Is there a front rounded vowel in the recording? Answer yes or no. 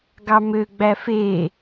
yes